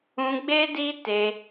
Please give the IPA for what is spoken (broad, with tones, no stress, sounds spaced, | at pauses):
ũ˧ ɡ͡b e˦ d i˦ t e˧